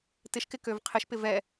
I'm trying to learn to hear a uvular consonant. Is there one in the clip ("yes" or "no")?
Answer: yes